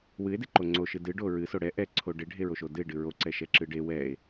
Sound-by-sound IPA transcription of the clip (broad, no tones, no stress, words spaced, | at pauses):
wɨe̯deǃo ŋ͡ǀoʃɨ dɨɖo ɹɨso ɽɛ ʔɛǀʰo ɖeɖʱeɹoʃo dɨe̯ɖɨ ɹoǀɛʃɛǁɨ ɖe wɛe̯